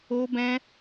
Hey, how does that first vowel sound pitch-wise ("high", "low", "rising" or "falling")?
high